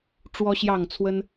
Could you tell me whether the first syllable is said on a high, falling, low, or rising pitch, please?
high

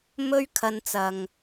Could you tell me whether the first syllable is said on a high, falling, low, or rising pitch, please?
high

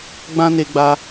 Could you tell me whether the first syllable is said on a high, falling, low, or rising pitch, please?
high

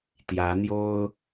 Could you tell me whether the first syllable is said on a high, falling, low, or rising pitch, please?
rising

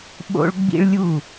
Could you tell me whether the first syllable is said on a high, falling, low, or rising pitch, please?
high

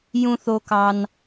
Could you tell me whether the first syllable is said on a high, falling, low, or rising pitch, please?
high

